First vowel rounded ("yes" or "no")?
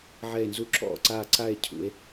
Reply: no